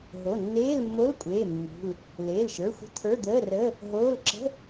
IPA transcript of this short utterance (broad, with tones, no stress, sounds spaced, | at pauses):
ɦ o˩˧˩ nː eː˧˥˧ l mː o˧˥˧ l kʷʼ eː˩˧˩ mː ṳ˩˧˩ l | l eː˩˧˩ l ʃ ə˞˩˧˩ xʷ ə̤˧˥˧ t̪ʰ ə˞˧˥˧ d̪ əː˧˥˧ r əː˧˥˧ | ɦ oː˧˥˧ l ǁ ə̤˧˥˧